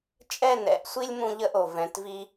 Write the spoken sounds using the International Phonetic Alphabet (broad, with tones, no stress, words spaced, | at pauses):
t͡ʃʼɛ˦˨nɛ̰˨˦ʔsʷi˦lʲ mũ˧ʎə˧ʔo˨ vɛ̃˨˦tvi˦